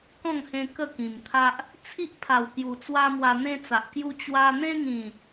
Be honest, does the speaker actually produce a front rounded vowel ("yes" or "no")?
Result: no